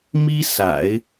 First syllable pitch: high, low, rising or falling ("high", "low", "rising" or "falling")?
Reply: high